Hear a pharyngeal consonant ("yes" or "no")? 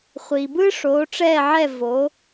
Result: yes